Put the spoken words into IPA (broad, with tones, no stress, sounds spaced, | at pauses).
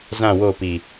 z ã˦˨ w o˦˨ p i˨